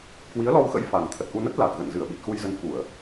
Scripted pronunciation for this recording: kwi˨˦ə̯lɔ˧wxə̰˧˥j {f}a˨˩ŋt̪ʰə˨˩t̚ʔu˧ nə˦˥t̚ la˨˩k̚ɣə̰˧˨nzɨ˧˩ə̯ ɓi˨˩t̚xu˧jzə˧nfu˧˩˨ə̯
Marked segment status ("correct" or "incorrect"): correct